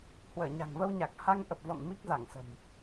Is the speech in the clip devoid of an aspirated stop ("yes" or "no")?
yes